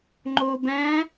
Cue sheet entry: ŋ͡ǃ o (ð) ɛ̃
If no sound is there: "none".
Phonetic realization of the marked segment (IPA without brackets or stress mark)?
b